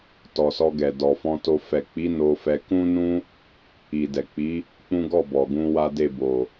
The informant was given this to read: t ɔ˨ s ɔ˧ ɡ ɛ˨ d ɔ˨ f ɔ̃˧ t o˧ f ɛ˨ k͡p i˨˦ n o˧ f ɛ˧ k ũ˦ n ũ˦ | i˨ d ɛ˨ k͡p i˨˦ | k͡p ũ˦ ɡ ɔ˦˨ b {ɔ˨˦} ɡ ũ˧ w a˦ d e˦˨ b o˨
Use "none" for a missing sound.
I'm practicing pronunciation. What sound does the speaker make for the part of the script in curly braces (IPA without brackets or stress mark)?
ɔ˨